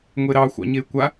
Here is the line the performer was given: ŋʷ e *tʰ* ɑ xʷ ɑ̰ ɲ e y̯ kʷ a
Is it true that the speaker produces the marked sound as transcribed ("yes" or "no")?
no